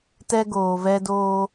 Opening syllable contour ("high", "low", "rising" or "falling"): high